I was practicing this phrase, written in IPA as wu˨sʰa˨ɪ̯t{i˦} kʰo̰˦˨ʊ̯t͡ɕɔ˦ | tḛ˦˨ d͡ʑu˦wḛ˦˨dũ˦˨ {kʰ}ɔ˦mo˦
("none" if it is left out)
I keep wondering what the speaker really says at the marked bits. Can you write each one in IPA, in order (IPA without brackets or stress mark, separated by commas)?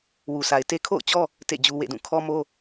e˦, kʰ